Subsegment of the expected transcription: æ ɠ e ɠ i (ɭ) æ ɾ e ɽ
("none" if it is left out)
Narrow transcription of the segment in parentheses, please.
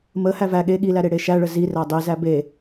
l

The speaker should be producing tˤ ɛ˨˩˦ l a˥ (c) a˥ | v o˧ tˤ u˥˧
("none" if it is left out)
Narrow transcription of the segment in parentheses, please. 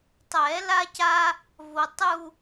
c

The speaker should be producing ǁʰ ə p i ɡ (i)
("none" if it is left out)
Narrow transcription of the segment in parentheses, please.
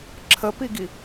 i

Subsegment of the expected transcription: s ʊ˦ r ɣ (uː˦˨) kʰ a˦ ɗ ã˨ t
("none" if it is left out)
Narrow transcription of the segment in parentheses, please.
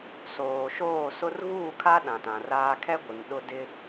uː˦˨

